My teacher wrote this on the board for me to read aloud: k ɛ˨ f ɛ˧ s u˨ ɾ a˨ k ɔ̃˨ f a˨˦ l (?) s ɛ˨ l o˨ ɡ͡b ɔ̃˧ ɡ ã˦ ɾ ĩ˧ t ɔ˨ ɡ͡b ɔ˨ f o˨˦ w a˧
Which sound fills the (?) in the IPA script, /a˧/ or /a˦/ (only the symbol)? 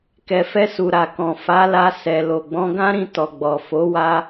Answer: a˧